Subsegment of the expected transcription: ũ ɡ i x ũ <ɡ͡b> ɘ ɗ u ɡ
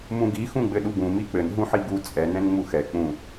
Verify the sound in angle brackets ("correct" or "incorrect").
correct